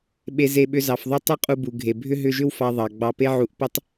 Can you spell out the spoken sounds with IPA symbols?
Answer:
ɓ e˧ z e˧ ɓ ʏ˧ z ɑ˨ f ðˤ u˧ tˤ ʏ˦ qʼ u˧ b u˨ ɡʱ e˨ bʱ ʏ˦ ɦ ʏ˧ ʒ ʏ˦ w f ɑ˧ ðˤ ɑ˨ ɡ͡b ɑ˧ p e˦ ʕ u˨˦ ʔ p ʏ˦ tˤ

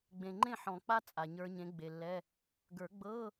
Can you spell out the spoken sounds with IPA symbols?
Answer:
ɡ͡b ẽ˨ ŋ͡ǃ ẽ˥˨ ħ ɔ̃˨˩˦ k͡p a˦˥ t͡sʼ a˨ ɲ ə˞˦˥ ɲ ẽ˨˥ ɡ͡b e˨ lː ɛ˧˥˧ | ɡ ə˞˨˩˦ ɡ͡b ɤ˧˥˧

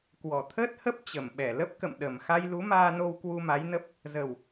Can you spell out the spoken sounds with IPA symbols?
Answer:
k w ɔ˧˩ t̪ʰ əː˦˥ t̚ h ə˦˥ p̚ t͡ɕ ə˧˩ m ɓ ɛ˧˩ l ə˦˥ p̚ k ə̰˧˨ m ɗ ə˨˩ m x a˧ j l u˨˦ m aː˧ n o˧ w k w u˧ m a˨˦ j n ə˦˥ p̚ | z ə˨˩ w

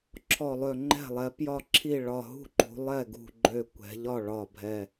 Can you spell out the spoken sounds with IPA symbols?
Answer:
ǁʰ ɔ˧˩ lˠ ø˧˩ ŋ͡ǃ ɛ̤˥˩ lˠ ɛ˩˧ p j ɒ˥˩ ǁʰ i˥˩ ɭ ɒ˧˩ ɦ ṳ˥˩ ǃ ṳ˩˧ lˠ ɛ˥˩ ɡ ṳ˧˩ ɡ͡ǃ ø˧˩ kʷ ɛ̤˩˧ ʎ ɒ˥˩ ɭ ɒ˧˩ bʱ ɛ˧˩

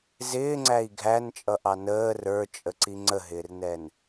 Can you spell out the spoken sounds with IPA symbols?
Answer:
z ɪː ŋ͡ǀ æ i̯ ɡʱ æ n t͡ʃʼ ʌ ʔ ɑ n əː r ə˞ t͡ʃʼ ə ǀ i ŋ͡ǀ ə ɦ ɪː r n ɛ n

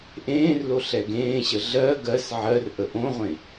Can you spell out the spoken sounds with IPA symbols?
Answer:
ʔ ẽː r l o ɬ ɛ ɡ ẽː ɕ ə ɮ ɜ ɡ ɜ s ʕ ɜ r ʔ ə ʔ õ ʁʷ ẽ

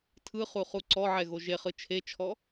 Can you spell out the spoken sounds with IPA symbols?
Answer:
tʰ ɯ χ u χ u ǀ ɔ ʕ ɛ ɣ o ʒ e χ ɯ t͡ʃʰ e t͡ʃʰ ɔ

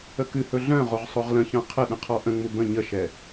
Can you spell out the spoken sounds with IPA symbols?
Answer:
ə k ɨ h ɵ ɮ œ̃ ʁ o ʁ sˤ o ʁ l ə̃ ç œ̃ qʰ ə ɗ ə̃ qʰ ɔ ʔ ə̃ ŋ͡m u b ə̃ ɲ ə ʃ ɛ

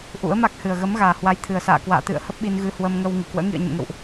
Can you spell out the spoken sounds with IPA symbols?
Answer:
ʔ ṵ˧˥ ə̯ m a˦˥ k̚ h ɨ˨˩ ə̯ ɣ ə˨˦ m ɣ aː˨˩ h w a˨˦ j t̪ʰ ɨ˨˩ ə̯ s a̰ː˧˨ k w a̰ː˧˨ t̪ ɨ̰˧˨ ə̯ h ə˦˥ p̚ ɓ i˧ n ɣ ɨ˧ h w ə˧ m ŋ ə˧ w ŋ ɨ˧˩ k w ə̰ː˧˥ ŋ ḭ˧˨ ə̯ ɲ ə̰˧˨ m ŋ ə̰˧˨ w ʔ

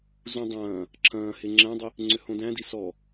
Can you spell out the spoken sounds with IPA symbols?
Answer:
z ũ dˤ ɐ̃ː | ǁʰ ɐ̃ː h e ŋ͡ǁ æ̃ dˤ i | ŋ͡ǀ ʏ h õ d æ̃ d i s ɔ

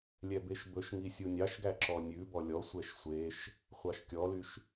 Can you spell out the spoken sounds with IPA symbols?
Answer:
lʲ ɛ b e ʃ b ɵ ʃ ŋ i sʲ u nʲ ɑ ʃ ɡ æ ǁ ɔ nʲ ʉ b ɔ lʲ ɔ sʷ ɛ ʃ sʷ e ʃ | χʷ ɑ ʃ kʲ ɔ l y ʃ

